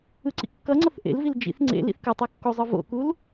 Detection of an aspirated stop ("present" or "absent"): absent